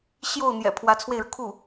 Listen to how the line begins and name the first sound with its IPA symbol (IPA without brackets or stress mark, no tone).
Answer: ɕ